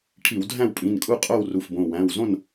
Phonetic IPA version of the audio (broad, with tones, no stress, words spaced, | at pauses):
ʈʰi˧˩˧wdʱæ̃˥˨wpʼĩ˩˧˩nkʼu˥˨ qʼo˥˨wru˩˧˩fbõ˩˧˩ wæ̃˩˧˩wzõ˥˨n